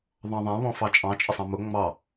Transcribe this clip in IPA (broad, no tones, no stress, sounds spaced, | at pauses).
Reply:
ðˤ ɑ̃ ðˤ ã β ɔ̃ f ɑ t͡ʃʼ ɑ̃ t͡ʃʼ ə sˤ ɑ̃ m ʊ ŋ͡m ɑ